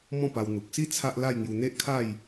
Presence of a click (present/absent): absent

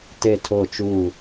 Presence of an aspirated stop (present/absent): present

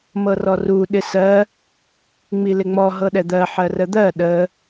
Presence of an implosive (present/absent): present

